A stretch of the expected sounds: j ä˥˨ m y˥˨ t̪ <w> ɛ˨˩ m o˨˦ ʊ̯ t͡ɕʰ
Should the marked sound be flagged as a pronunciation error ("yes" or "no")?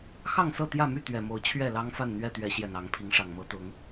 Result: yes